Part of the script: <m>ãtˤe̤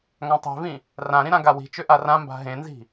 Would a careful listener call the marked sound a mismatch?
yes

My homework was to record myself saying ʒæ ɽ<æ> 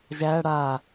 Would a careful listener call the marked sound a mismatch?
yes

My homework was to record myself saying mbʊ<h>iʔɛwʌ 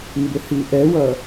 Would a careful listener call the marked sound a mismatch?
no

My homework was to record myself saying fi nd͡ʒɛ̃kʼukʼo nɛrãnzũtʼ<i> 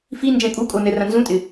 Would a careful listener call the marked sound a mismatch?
yes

